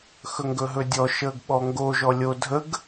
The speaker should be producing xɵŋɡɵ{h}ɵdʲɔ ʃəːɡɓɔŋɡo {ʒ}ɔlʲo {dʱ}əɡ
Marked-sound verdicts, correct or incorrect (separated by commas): incorrect, correct, correct